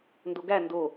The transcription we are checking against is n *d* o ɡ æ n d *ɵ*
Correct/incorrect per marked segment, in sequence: correct, incorrect

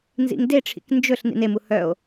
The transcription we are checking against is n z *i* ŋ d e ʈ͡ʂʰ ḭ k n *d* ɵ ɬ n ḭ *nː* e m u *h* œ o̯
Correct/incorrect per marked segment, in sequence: incorrect, incorrect, incorrect, correct

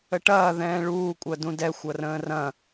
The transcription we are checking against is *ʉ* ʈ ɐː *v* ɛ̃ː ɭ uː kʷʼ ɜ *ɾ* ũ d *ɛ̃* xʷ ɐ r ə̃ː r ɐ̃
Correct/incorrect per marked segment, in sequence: incorrect, incorrect, incorrect, incorrect

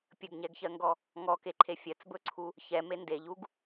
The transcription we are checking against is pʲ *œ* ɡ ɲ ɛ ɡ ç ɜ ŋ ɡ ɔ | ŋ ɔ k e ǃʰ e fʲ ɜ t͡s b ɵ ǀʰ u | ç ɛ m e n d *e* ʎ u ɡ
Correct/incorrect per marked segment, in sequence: incorrect, correct

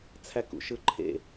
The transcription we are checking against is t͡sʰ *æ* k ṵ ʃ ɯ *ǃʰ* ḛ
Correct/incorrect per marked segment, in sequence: correct, correct

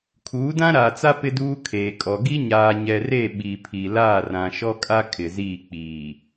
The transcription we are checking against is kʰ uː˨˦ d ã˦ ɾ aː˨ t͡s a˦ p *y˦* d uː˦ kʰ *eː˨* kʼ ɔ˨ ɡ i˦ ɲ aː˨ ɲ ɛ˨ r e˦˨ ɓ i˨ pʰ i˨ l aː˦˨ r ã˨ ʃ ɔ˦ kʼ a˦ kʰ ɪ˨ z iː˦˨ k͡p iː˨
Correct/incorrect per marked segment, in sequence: incorrect, correct

